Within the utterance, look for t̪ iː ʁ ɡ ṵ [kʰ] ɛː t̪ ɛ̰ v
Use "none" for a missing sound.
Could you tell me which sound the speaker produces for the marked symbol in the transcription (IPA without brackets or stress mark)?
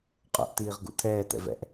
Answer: t̪ʰ